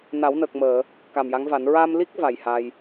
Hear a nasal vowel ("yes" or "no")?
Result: no